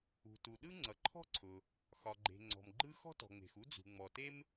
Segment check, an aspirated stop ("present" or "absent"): present